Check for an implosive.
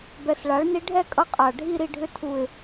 absent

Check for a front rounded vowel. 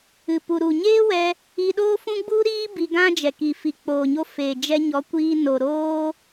absent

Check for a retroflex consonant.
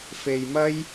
absent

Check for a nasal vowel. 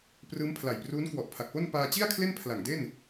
absent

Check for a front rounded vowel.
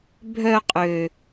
present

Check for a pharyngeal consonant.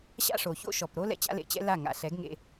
absent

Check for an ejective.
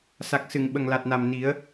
absent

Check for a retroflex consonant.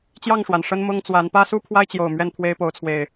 present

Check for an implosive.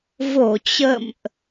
absent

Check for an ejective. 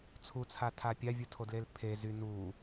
absent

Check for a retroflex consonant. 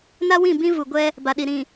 absent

